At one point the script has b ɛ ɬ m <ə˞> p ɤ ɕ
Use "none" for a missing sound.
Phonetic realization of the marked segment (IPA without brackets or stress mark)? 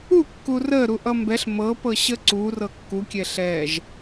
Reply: ɤ